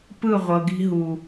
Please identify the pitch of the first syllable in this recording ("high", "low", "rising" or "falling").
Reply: falling